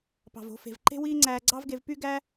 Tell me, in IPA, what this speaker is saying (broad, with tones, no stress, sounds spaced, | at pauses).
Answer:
p ɑ̤˩ v o̤˧ f e̤˩ v ǃ e̤˥ w iː˥ ŋ͡ǀ æː˧ ɡ͡ǀ ɑ˥ v ɡ e˧ v p y˥ ɡ æ˥